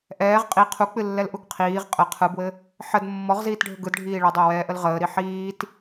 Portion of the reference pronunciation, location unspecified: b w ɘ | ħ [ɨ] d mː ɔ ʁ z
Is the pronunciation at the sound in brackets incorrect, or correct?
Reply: incorrect: ə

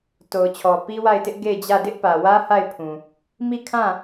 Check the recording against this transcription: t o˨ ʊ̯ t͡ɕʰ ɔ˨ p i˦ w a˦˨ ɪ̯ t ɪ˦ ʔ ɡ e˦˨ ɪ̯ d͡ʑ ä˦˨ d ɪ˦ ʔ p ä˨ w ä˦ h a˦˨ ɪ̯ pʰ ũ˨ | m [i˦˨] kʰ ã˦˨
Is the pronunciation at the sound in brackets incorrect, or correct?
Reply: correct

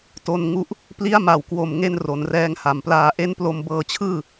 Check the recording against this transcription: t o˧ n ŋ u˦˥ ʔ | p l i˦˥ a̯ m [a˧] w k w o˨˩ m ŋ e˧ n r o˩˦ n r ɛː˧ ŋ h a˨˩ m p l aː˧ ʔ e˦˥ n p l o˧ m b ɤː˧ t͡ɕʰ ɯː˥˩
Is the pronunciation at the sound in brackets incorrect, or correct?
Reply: incorrect: a˨˩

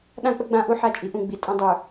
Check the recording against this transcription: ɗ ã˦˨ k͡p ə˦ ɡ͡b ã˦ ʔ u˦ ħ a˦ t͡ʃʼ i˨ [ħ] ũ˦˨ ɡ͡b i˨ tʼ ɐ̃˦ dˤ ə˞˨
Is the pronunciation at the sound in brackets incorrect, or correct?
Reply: incorrect: ʔ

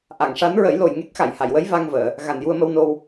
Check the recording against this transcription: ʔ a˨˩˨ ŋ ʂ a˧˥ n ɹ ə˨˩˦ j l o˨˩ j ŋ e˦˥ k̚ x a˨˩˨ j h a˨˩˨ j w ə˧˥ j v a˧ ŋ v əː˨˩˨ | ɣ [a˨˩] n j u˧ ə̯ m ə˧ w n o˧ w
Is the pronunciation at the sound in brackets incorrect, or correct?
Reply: correct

